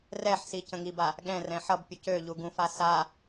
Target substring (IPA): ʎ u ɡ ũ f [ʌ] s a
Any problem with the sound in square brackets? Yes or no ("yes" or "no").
yes